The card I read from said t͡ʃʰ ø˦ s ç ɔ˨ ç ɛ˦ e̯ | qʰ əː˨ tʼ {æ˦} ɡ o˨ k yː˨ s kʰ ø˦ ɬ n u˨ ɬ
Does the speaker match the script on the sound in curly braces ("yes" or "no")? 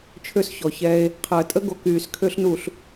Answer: no